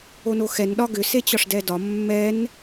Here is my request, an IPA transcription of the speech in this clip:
onoxɛn ɗɒɡʏset͡ɕɒʂ dɛdɒ mːɛn

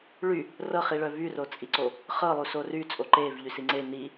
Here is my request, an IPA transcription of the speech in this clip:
ɭy | rɤχiɭœ vyrot͡sʼiǀo | χɤlˠuso ryt͡sʼo ǃevʎysi ŋ͡ǀe ni

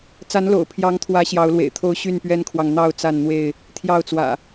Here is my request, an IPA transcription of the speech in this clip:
t͡sa˨˦nlo̰˨˩ʊ̯pʰjɑ˨˦ŋt̪ʰwä˨˦ ɕjɑ˨˦ʊ̯lwḛ˨˩ɪ̯t̪ʰo˦ʊ̯ ɕy˥˨npɥɛ˦nkʰwɑ˨ŋ n̪ɑ˥˨ʊ̯ t͡sa˥˨nn̪we˥˨ɪ̯ | t̪ʰjɑ˥˨ʊ̯t͡swä̰˨˩

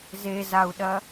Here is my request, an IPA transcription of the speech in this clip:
zezau̯ɗɐ

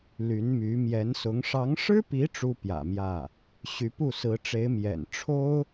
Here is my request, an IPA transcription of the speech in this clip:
ly˧˥nmy˧˥ mjɛ˧˥nsʊ˧˥ŋ ʂɑ˧˥ŋʂɻ̩˥pi˧˥ ʈ͡ʂu˥pjä̰˨˩mjä˥˩ | ɕy˧˥pu˥˩sɹ̩˧˥ʈ͡ʂe˧˥ɪ̯ mjɛ̰˨˩nʈ͡ʂʰo˥ʊ̯

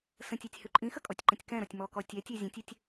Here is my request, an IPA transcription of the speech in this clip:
sə̃tʲitʲ hʉǃʼĩxə kʼɔtʲǃə̃tʲkɛ̃ɾɔtʲ mɔkɔ tʲɛtʲe zʲə̃tʲetʲ

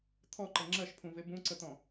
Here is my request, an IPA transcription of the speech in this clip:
t̪ʰɔǃə ŋ͡ǁɜʃpʰũve bũǀət̪ɔ̃

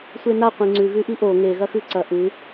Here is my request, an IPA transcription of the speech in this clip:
sʷenaqʷĩ ŋ͡ǀʉɣʉʔi ʔo ŋe ɣɐxʉǀɐ ʔɨ

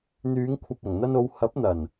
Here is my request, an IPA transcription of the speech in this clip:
n̪yː˨˧ŋkʷʰɐ˨p̚ɐ˨˩ŋ n̪ɐ˧no˨˧w hɐ˨˥p̚n̪ɐ˨˩n

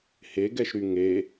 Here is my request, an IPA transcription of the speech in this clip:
heɡɛʃɾy ŋe

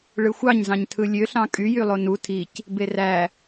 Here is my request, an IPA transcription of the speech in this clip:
ɭɯxʷɑɲzɑ̃ɲ tʰɯlʲøɬɑ̃ kʼyjylˠo nu tʰic | beræ

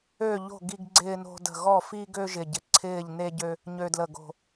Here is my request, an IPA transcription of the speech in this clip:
ø˥˧ʎo̤˥˧ ɡi˥ɡɡ͡ǀɪː˥no̤˥də̤˥˧ ɣɔ˥˧fi˥ɡø˥ ʒɪ˥˧ɟɪ˥˧ ǀʰɪː˥˧ʎne˥ɟø˥ | ɲø˥dlə˥˧ɡo̤˥˧

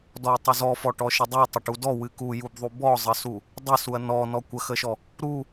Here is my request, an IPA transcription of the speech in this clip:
dɔɐ̯tˤuzɔfɔ ʈɔʃədˤu tˤəʈudɔ wɨkujubðˤu bɔzˤəsu | dˤəsuɐ̯ nɔ nɔkʷəxəʃɔ | ɾu

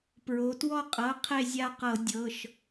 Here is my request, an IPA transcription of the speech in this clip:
pɹo˩˧twɔ˦˨qʼɤ˩˧˩ qʰe˦˨zʲa˦˨qɤ˧˩˧ dʲɤ˩˧˩ʃ

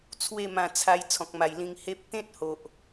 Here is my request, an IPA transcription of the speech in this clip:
t͡sʰwe˥˧mã˧ t͡sʰa˧j t͡sʰɔ̃˨k̚ma˨˩jlĩ˧ŋ he˦p̚ t̪ẽ˦t̚ho˨ʔ

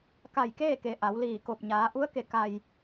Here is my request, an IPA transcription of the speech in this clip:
ka˧˩jkeː˥˨ke˩ ʔa˩˧wliː˧˩ko˧˩p̚ ɲaː˩˧ʔu˧˥ə̯ke˩ ka˩j

